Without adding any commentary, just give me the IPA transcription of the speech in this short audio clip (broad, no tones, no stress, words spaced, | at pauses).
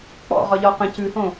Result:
k͡pɔ̰ ʁɒʎɒ qə̃ cʉhõ